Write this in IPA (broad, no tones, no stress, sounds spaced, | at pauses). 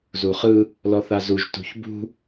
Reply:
z u χ ɯ | l ɔ θ a z u ʒ t ṳ ç b ṳ